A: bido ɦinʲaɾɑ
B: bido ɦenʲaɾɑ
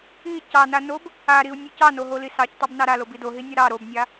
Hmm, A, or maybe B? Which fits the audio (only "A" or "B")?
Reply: A